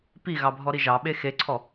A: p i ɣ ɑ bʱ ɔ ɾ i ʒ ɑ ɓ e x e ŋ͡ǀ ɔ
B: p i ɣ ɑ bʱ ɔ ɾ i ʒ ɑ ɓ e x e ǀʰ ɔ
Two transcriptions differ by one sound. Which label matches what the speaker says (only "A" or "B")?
B